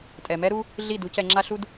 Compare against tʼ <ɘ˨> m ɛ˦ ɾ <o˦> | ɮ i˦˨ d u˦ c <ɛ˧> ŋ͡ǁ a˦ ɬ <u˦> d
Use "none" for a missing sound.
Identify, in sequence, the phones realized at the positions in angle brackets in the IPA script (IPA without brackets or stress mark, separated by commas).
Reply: ɛ˨, u˦, ɛ˧, u˦